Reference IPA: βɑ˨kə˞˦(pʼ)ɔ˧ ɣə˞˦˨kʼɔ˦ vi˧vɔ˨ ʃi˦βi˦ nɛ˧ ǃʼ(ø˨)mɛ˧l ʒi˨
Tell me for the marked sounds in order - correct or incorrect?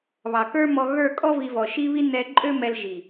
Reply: incorrect: m, incorrect: ø˦

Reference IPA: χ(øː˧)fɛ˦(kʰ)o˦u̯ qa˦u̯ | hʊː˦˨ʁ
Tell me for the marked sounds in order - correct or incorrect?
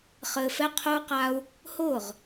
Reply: incorrect: ɘː˧, incorrect: qʰ

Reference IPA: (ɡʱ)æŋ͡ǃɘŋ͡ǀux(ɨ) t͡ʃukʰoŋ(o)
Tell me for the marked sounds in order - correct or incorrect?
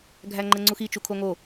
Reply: correct, incorrect: i, correct

